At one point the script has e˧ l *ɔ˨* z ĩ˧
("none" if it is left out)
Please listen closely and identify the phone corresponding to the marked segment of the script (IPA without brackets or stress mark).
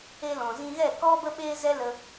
ɔ̃˨